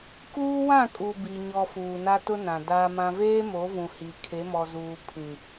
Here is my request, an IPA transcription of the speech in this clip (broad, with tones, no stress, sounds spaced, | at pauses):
k uː˦ w ã˦˨ kʼ u˨ b i˨ ɲ ɔ˨ f uː˨ n a˦ t ʊ˦ n ã˨ d aː˦ m ã˦ v eː˦ m o˨˦ v ũ˨ h i˨ kʰ e˨˦ m ɔ˨ z uː˨ pʰ ĩ˨